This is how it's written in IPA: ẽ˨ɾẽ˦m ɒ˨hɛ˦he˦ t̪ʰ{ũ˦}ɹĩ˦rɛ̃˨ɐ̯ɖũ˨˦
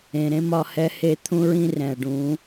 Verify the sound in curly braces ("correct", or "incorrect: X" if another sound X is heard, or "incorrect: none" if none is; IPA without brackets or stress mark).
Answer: correct